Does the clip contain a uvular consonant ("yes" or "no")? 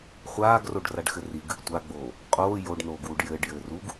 yes